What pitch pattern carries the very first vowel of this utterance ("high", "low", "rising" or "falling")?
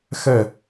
falling